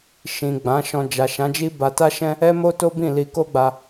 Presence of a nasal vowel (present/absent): present